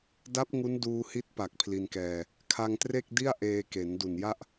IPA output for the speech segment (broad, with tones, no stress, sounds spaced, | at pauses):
d a˦˥ p̚ ŋ u˦˥ n d uː˧ h i˦˥ t̚ p a˨˩ k̚ pʰ l i˧ n k ɛː˧ | kʰ a˧ ŋ t r e˥˩ k̚ d i˥˩ a̯ ʔ eː˧ k e˩˦ n d u˨˩ n j a˥˩ ʔ